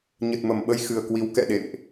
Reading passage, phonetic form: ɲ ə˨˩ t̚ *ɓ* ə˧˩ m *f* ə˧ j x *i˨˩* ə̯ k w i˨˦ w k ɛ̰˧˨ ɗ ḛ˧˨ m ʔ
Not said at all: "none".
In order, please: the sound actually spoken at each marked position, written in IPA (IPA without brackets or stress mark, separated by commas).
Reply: m, ɓ, ɨ˨˩